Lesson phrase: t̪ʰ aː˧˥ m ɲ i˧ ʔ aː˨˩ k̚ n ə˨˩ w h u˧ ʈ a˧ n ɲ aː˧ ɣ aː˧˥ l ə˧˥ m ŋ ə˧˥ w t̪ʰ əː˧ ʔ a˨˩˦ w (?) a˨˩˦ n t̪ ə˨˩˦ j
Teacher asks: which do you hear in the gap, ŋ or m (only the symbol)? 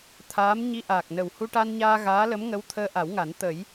ŋ